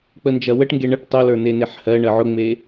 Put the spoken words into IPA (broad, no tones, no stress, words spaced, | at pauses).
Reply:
k͡pənd͡ʒɐwəʈŋɡe ɳəʈ tˤolə˞ neneħhɜɳɜ ʕʊŋ͡me